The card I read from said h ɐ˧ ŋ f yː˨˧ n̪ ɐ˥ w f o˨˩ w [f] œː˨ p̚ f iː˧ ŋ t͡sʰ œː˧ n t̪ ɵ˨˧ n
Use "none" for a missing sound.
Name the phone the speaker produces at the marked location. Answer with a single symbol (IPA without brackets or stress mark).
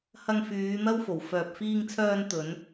f